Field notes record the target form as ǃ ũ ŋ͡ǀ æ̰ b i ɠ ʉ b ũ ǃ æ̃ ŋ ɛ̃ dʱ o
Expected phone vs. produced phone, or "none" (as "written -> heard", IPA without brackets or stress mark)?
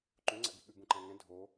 none